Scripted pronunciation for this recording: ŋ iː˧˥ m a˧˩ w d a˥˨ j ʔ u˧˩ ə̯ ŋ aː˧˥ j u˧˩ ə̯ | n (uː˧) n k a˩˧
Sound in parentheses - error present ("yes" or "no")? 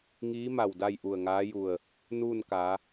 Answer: yes